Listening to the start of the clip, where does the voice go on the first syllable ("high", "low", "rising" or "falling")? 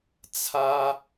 high